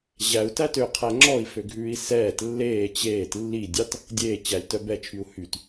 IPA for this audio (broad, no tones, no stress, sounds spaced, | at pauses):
ʑ æ u̯ t æ t ø qʰ æ ŋ͡ǁ ɔ i̯ f ø ɡʱ ʉː i̯ s ɛː t lː eː t͡ɕ eː t lː i dʲ ɑ t | dʲ eː t͡ɕ æ lʲ t œ b ɛ t͡ʃʰ y u̯ h y t